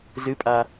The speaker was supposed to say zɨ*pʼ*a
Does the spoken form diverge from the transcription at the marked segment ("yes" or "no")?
no